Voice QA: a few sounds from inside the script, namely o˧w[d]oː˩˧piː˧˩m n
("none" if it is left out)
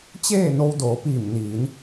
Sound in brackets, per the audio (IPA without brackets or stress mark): d